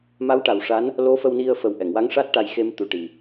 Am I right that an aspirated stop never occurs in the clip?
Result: yes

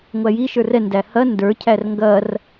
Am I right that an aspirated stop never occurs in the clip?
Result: no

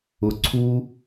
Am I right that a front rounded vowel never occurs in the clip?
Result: yes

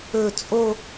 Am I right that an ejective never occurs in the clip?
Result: no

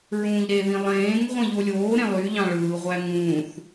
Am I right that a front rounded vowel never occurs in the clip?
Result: no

